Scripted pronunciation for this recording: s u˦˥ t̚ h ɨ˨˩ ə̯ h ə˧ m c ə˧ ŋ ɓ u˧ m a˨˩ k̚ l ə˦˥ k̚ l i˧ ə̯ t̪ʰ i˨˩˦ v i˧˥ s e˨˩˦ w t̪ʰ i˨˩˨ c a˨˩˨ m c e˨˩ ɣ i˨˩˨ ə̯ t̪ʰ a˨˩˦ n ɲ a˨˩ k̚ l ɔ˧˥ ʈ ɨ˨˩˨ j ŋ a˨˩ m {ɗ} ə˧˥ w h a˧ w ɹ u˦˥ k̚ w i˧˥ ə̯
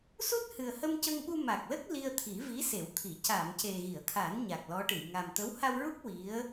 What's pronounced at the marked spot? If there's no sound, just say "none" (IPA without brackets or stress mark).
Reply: t̪